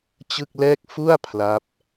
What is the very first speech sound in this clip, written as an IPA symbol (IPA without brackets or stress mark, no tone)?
t͡ɕ